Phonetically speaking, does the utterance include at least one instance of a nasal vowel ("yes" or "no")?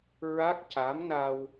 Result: no